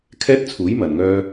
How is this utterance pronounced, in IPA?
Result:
kʰɛː˥t̚t͡sʰuː˨˥j mɐ˨nŋœː˥

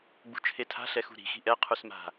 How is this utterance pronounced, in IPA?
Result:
ɡ͡bṳt͡ʃʰetʰa̤ ɬɛxṳɾi̤ xi̤ʔɛ qʰusma̤

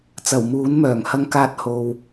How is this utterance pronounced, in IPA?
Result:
t͡sɐ˨˩wmuː˨˥nmœː˨˩ŋ hɐ˧ŋkaː˧t̚ ho˨w

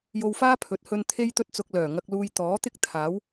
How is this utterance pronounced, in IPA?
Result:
jo˧wfaː˥pʰɵ˨˥t̚hɵ˧n t̪ʰe˥jt̪ɵ˥t̚t͡sʊ˧k̚ lœː˨˩ŋɐ˧k̚luː˧j t̪ɔː˨˥t̪ɪ˥k̚ t̪ʰaː˨˥w

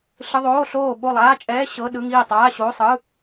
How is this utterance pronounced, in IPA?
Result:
ɬɯ˧˥˧ðˤoː˧˥˧ɬoː˥˨ ɓo˥˨lˠaː˧˥˧t͡ʃʼɛː˧˥˧ ɕɤ˧˥˧ɗɯ˧˥˧ŋiː˥˨tˤaː˧˥˧ ɕo˧˥˧sˤɯ˧˥˧

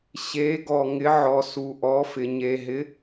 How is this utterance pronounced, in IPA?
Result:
ɕe˧˥ɡɔ˧ŋɪ˧˥ ʕɔ˧su˧ ʔɔ˧˥fɪ˧ ɲe˧ɦɪ˧˥

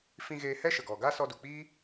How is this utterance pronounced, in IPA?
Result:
fĩ˧ɣeː˧hɛ˦ ʃə˨ɡɔ˨ ɡa˦sɔ˧du˨k͡piː˦

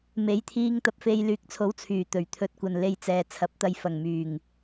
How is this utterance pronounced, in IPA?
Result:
me˨˥jt̪ʰiː˧ŋ t̪ɐ˧p̚fe˧j lyː˨˥k̚t͡sʰo˨˥w t͡sʰyː˨˩t̪ɵ˨˩ɥ t̪ʰɵ˧t̚kʷɐ˨nle˧jt͡sɛː˨ t͡sʰɐ˨˥p̚t̪ɐ˧j fɐ˨˩ŋ myː˨˩ŋ

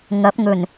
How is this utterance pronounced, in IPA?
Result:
ŋɐ˨˥p̚ŋɵ˨˩n

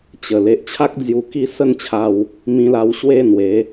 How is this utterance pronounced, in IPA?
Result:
t͡ɕə˨˩ le˨ʔt͡ɕʰa˦k̚ d͡zju˧ki˥˧ sə˥˧nt͡ɕʰa˧w | mĩ˧la˧w ɕwe˥˧n̪we˨˦

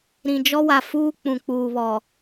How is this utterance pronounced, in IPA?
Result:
ɾĩ˨d͡ʒɔ˦wa˨fuː˦ k͡pũ˨ k͡puː˨βɔ˨

